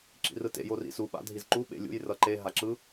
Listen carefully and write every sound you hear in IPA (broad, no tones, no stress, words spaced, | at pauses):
ǁḭrɯtḛ jorḭsu ɓa̰dʱizǃu ɓḛlʲṵj rʌǃe ɦaǁɯ